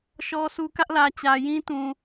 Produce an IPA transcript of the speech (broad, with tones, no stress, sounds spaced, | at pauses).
ʃ ɔ˦ sʰ u˦ k ä˦ ʔ l ä˨ t͡ɕ ä˨ j ĩ˦ t ũ˨